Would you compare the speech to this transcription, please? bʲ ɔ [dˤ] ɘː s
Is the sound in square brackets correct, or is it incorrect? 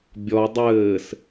correct